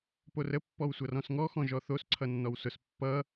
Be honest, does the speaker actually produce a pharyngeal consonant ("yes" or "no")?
no